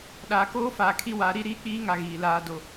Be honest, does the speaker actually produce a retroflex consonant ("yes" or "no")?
no